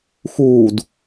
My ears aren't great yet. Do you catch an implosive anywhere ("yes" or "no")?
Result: no